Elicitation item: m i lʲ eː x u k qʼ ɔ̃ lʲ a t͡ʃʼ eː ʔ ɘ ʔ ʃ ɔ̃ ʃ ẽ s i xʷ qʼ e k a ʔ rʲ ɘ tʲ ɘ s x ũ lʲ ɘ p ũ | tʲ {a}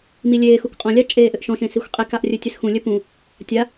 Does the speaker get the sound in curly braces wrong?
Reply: no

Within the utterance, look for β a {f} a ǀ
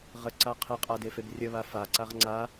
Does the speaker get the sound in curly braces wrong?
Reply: no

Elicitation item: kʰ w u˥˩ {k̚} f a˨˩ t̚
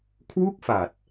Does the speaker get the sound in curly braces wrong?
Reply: no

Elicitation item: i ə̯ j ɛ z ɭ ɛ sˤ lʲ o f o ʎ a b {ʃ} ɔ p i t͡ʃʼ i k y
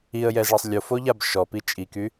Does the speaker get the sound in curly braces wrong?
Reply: no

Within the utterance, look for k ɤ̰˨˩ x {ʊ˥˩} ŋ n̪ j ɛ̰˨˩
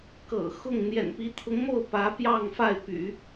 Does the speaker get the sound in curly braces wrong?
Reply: no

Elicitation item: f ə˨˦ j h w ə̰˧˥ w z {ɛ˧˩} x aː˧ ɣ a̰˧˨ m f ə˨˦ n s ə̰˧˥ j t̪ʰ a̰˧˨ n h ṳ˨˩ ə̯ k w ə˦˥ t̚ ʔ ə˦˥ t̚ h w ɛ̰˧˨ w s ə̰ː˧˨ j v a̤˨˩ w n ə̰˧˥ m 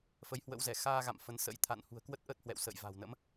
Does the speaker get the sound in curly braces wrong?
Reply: no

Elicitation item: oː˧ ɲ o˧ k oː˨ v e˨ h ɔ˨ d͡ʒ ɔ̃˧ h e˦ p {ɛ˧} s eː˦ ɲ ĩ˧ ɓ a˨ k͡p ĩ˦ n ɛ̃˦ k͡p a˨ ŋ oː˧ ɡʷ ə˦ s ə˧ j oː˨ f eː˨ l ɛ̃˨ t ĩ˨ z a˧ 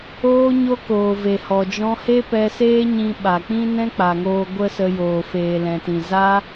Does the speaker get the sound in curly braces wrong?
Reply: no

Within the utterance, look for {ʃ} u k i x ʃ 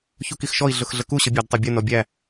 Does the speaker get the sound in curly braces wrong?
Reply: yes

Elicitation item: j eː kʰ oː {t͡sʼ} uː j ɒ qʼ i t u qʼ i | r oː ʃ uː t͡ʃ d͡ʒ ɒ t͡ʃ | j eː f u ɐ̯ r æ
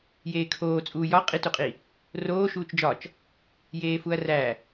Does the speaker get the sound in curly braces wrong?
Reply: no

